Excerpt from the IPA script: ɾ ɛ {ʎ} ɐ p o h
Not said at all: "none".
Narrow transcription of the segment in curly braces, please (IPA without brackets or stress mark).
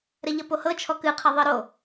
ʎ